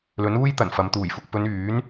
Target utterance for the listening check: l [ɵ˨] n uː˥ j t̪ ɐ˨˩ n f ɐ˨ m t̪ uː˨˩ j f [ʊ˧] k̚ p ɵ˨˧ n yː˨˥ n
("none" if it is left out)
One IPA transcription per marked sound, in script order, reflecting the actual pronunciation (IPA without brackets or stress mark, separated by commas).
ɵ˨˥, ʊ˨